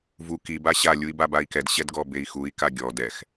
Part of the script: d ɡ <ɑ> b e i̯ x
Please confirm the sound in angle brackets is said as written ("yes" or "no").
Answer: no